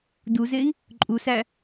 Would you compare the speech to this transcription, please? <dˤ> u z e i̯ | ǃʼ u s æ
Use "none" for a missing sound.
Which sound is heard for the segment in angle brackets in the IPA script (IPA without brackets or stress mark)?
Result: d